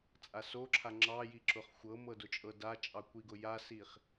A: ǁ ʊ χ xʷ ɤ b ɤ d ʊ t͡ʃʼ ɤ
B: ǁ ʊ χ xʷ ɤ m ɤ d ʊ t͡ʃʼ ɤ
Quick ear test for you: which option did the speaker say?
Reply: B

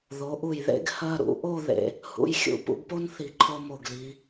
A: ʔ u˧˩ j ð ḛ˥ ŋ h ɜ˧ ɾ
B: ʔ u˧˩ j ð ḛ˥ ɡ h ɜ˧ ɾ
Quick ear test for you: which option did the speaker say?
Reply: B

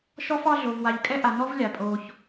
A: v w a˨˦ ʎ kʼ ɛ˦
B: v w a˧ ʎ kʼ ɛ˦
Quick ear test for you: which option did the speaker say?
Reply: B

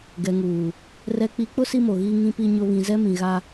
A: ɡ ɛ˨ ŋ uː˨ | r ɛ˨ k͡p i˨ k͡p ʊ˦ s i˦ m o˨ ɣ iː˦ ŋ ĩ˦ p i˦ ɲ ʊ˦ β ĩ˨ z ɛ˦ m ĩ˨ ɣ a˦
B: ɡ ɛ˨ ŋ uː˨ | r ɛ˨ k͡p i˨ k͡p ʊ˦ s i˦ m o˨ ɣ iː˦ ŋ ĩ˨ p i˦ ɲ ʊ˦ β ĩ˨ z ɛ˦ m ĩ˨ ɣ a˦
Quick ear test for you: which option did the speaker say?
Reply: A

